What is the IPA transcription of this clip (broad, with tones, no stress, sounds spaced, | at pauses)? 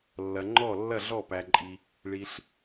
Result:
lː ɐ˨ ŋ͡ǃ ɔ˦˨ lː ɐ˦˨ ɮ ɔ˦˨ p æ˨ ǃʼ i˨ | ɭ i˨ ɬ